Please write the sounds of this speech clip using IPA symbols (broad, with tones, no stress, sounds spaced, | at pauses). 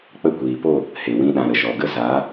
k͡p ə˦˨ kʷ iː˨ p o˦˨ | h e˨ w ĩ˧ ɗ ã˨ ɾ ə˨ ʃ ɔ˨ ɡ ə˦ z a˨˦